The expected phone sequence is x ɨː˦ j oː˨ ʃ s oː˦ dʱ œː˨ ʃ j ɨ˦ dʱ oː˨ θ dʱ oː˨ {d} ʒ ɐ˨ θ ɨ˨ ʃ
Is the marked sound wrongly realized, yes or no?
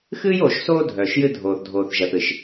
yes